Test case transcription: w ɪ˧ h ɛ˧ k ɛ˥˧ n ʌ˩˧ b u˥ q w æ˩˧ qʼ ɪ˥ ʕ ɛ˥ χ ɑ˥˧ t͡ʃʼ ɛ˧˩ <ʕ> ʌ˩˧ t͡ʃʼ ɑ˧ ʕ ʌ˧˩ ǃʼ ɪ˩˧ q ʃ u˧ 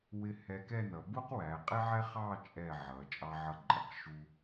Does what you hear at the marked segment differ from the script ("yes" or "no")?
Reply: no